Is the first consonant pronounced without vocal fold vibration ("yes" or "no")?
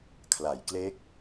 yes